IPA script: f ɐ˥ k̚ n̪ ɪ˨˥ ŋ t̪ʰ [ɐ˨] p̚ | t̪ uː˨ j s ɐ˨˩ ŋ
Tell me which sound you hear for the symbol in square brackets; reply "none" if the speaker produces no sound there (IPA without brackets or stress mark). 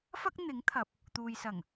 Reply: ɐ˨